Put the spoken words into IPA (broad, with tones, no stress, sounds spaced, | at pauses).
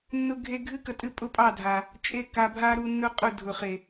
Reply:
nː ʊ˦ ɡʱ e˦ ɡʱ ɨ˦ k ə˨ tʼ ɨ˧ pʼ ʊ˦ pʼ ɑ˦˨ dʱ a˨ | t͡ʃʼ e˦ k a˧ bʱ a˦ ɾ u˧ nː ʊ˦ qʼ ʊ˦˨ dʱ ʊ˨ χ e˨